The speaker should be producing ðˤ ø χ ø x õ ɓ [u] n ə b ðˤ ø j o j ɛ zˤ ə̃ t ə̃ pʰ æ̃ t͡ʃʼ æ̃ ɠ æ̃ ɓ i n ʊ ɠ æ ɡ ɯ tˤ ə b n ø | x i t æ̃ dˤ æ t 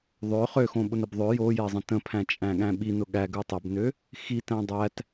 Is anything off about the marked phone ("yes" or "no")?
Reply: yes